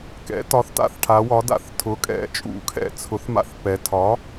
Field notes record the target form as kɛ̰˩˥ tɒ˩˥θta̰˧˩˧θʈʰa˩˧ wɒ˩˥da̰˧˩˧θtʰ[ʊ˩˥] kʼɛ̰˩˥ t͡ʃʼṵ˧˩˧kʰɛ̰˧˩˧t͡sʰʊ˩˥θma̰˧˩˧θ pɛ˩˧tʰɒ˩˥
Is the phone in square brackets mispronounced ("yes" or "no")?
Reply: no